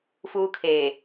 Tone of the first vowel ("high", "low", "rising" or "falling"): high